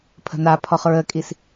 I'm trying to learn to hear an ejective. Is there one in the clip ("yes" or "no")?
yes